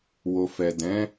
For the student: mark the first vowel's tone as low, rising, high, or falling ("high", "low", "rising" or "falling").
low